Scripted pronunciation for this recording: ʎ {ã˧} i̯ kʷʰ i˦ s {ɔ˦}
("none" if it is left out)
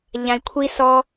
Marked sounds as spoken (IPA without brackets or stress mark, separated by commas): ã˧, ɔ˦